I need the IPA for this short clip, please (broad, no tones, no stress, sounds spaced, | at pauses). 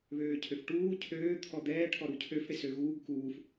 β øː cʰ ø f ʈ uː cʰ øː t̪ʰ ɔ d̪ ɛː ʈʰ ɔ ɾ u cʰ ø f ɽ e s ø ɣ uː ɡ k uː f